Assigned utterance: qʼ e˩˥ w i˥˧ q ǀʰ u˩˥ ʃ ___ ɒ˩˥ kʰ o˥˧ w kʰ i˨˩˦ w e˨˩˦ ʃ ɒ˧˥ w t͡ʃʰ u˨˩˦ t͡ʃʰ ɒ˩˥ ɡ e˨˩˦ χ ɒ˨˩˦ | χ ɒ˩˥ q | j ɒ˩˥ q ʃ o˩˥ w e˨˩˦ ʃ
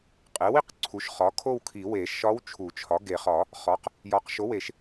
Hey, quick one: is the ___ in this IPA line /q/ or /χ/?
χ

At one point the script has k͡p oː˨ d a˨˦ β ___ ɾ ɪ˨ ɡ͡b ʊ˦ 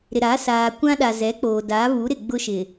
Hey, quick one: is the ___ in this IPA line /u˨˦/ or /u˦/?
u˨˦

